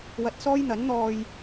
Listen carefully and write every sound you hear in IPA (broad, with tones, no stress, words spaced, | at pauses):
wɐ˧t̚sɔː˥jn̪ɐ˨˥n n̪ɔː˥j